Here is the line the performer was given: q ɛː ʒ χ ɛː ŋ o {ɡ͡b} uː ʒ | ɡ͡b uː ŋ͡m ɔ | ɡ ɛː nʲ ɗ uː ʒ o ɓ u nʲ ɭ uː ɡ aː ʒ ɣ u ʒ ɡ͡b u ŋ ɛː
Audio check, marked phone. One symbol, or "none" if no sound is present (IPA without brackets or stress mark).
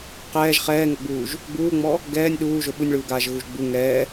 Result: ɡ͡b